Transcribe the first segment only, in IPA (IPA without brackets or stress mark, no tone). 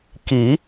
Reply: k